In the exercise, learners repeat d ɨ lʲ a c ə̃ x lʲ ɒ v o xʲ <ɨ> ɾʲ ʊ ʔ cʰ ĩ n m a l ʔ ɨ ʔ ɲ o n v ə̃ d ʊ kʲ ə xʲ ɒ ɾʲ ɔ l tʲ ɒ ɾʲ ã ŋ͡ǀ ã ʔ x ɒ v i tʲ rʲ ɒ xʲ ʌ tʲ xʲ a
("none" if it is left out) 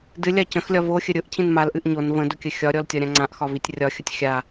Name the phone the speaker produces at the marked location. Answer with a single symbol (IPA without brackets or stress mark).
ə